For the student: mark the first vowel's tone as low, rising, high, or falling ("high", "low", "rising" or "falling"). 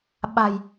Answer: low